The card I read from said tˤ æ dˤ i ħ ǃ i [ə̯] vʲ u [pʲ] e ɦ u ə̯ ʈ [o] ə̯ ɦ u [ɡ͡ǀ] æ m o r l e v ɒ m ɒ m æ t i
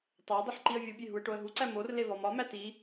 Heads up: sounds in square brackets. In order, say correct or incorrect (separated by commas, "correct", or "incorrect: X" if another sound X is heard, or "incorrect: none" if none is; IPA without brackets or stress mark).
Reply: correct, incorrect: bʲ, correct, incorrect: ǀ